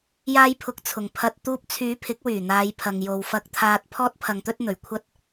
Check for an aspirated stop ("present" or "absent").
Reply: present